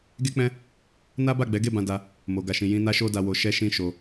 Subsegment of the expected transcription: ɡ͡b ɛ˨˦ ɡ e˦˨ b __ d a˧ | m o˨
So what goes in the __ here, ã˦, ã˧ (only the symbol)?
ã˧